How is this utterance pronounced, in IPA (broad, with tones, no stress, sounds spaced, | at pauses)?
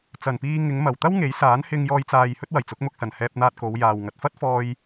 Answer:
t͡s ɐ˨˩ n p iː˧ ŋ ɪ˨˧ ŋ m ɐ˨˩ w t̪ ɐ˥ w ŋ e˨˥ j s aː˨˥ n h ɪ˧ ŋ j ɔː˧ j t͡s aː˨ j h ɵ˥ t̚ w ɐ˨˩ j t͡s ʊ˨˥ k̚ m ʊ˧ k̚ s ɐ˨˩ n h ɛː˧ p̚ n̪ aː˧ t̚ k o˨˧ w j aː˨ w ŋ ɐ˨ t̚ f ɐ˥ t̚ f ɔː˧ j